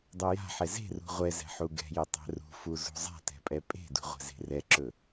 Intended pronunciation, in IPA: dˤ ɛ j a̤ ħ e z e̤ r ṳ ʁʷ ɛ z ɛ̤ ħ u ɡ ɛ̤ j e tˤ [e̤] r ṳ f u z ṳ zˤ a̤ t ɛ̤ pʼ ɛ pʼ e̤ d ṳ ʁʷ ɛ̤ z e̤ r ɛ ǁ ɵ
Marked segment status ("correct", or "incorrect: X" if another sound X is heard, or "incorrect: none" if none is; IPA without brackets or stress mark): incorrect: ɛ̤